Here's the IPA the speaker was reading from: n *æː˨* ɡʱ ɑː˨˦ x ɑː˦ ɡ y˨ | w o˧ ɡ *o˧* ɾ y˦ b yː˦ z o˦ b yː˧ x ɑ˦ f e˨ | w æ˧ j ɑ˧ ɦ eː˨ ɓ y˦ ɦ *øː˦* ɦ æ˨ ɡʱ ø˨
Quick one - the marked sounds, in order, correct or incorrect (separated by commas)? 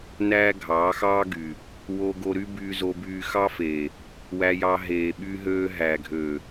incorrect, correct, correct